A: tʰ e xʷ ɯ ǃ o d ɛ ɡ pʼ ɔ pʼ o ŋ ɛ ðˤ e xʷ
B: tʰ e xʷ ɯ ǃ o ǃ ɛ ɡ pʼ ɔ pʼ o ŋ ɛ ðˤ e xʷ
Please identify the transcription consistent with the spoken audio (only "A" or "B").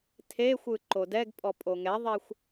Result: A